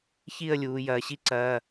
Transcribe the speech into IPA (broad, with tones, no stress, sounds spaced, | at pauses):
ç i˥˨ ə̯ lʲ uː˩˧ j ɐː˩˧ ɕ i˥ ǀ ɐː˩˧˩